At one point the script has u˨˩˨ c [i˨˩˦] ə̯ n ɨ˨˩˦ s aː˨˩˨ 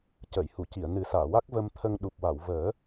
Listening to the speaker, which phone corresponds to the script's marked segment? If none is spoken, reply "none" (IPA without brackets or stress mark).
i˨˩˨